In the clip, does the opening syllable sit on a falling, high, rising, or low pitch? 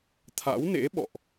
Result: rising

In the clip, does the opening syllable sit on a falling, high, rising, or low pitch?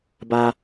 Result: high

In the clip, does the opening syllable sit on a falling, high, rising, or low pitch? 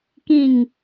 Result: falling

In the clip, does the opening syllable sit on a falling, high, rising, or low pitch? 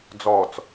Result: low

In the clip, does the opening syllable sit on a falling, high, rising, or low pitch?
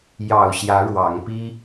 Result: low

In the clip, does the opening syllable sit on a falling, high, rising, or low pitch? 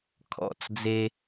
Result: falling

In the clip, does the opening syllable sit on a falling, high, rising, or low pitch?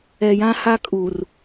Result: low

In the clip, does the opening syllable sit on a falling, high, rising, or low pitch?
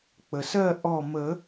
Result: low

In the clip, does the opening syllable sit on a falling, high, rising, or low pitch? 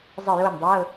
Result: falling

